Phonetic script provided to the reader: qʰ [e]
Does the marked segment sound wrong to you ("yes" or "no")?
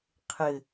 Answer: yes